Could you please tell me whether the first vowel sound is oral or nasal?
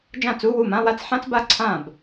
nasal